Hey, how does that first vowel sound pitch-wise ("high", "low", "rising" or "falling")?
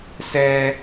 low